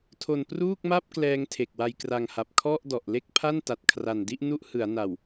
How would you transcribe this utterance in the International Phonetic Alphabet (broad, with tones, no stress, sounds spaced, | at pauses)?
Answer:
tʰ o˧ n p r uː˥˩ k̚ m a˥˩ p̚ k l ɛː˦˥ ŋ tʰ e˨˩ k̚ w a˧ j k r a˧ ŋ h a˨˩ p̚ kʰ ɔ˥˩ ʔ d ɔ˨˩ ʔ l e˥˩ k̚ pʰ a˥˩ n t a˨˩ t̚ kʰ r a˨˩ n d i˥˩ ʔ n u˦˥ ʔ h ɯ˩˦ a̯ n a˨˩ w